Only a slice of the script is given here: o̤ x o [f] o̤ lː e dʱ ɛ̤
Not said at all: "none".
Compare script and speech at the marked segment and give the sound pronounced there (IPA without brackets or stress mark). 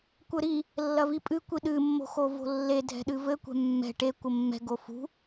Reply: v